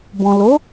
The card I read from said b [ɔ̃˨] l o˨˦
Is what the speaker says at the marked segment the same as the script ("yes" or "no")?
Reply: yes